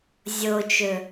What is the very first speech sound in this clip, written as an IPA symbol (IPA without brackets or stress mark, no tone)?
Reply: zʲ